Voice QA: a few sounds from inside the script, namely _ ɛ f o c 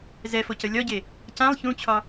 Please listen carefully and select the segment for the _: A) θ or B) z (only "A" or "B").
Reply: B